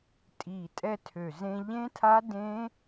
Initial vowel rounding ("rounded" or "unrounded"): unrounded